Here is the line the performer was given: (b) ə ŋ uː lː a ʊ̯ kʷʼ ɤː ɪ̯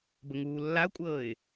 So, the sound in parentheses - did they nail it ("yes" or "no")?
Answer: yes